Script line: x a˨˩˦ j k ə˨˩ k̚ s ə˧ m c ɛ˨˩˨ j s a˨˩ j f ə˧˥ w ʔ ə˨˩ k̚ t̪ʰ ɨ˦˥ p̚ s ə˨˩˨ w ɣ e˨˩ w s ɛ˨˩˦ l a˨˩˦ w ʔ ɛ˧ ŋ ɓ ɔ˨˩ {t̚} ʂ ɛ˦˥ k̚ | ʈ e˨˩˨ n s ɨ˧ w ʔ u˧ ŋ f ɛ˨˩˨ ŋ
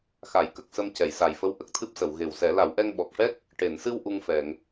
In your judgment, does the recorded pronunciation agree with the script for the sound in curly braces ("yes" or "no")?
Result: no